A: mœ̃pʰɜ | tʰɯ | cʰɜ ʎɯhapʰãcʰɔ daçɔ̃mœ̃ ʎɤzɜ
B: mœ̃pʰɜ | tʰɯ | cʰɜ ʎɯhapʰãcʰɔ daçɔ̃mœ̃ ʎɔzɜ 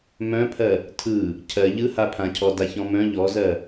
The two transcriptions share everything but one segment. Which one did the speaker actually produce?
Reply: B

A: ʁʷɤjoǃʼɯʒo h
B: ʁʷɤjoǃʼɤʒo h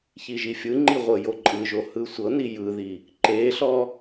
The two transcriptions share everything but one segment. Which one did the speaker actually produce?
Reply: A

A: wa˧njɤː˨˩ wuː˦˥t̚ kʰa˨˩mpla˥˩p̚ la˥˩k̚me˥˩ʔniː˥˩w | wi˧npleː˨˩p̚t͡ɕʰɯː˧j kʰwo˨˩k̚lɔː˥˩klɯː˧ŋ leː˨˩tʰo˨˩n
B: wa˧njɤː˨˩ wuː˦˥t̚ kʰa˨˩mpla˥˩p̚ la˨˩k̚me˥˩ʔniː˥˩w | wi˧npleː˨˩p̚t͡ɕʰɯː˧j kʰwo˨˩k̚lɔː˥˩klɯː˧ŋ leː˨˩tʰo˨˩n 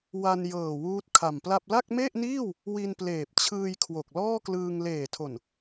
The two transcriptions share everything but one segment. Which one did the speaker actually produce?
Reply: A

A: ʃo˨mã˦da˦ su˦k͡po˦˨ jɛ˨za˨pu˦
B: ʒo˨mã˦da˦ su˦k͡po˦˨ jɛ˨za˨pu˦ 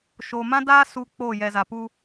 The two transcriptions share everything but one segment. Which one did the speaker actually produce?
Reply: A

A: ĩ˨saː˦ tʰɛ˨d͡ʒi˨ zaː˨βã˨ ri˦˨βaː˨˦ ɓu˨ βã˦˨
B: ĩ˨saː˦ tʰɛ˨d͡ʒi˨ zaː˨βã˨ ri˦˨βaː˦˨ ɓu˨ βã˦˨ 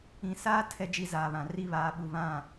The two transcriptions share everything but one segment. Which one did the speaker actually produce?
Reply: A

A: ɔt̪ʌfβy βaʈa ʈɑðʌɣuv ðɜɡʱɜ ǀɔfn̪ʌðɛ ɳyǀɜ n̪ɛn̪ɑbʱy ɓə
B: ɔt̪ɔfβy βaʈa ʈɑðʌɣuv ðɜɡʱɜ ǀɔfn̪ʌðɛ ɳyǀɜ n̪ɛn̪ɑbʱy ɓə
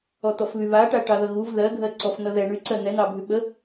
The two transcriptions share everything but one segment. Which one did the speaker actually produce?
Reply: B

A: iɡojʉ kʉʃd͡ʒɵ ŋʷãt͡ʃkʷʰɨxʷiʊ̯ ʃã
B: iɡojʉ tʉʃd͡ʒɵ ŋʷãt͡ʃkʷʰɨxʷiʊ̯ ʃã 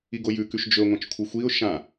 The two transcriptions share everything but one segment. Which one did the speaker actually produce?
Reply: A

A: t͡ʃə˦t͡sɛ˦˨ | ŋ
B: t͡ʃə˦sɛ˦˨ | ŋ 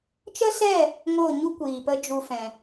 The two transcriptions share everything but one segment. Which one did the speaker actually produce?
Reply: B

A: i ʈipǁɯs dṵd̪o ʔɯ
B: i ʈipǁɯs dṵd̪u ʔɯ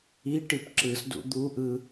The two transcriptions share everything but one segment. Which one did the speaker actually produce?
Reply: B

